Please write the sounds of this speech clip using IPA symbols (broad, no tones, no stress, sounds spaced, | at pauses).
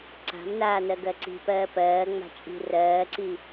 ǀ a̤ m n aː n ɜ ɡ ɜ ǀ i̤ p ɜː p ɜː ŋ͡m a̤ t͡ʃʼ i̤ r ɜː ǀ i